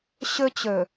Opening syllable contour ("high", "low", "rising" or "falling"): high